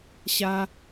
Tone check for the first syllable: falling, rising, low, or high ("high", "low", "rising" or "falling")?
high